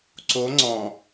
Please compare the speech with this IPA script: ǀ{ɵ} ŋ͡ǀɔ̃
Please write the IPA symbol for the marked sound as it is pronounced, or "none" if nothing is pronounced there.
o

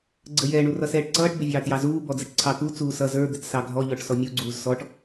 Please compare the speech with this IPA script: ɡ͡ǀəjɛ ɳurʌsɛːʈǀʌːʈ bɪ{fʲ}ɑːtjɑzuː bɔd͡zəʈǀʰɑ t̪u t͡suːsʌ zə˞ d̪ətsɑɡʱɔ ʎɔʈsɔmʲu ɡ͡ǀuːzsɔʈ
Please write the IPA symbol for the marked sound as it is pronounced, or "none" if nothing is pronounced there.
vʲ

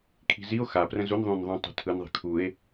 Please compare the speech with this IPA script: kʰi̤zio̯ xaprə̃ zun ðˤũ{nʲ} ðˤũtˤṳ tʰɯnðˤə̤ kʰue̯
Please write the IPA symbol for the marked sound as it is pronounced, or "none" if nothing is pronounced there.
n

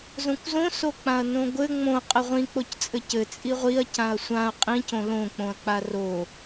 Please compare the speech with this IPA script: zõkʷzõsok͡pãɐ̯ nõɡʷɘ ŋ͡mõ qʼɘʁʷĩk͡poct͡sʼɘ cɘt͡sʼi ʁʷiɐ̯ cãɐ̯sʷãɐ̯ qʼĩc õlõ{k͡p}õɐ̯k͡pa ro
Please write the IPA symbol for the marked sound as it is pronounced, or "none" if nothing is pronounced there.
k͡p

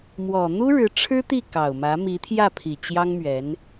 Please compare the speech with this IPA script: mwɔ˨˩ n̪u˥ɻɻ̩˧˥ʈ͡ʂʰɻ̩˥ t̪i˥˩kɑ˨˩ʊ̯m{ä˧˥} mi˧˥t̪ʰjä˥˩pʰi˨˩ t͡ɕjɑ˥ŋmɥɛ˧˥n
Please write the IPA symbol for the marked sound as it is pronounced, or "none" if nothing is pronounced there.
ä˧˥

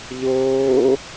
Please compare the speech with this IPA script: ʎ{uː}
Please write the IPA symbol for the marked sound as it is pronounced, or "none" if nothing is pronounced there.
oː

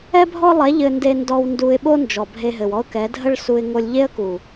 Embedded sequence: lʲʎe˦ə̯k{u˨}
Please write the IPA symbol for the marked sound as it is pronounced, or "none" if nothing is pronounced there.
u˨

